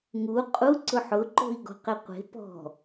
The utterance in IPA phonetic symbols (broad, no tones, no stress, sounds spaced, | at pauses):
ŋ u qʼ u ǀ ʊ ħ ʊ ǃ o̤ i̯ ɡ ɔ̤ q ɪ qʷ e̤ p ɔ̤